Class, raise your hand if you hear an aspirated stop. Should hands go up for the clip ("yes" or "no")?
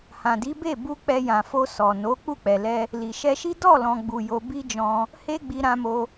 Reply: no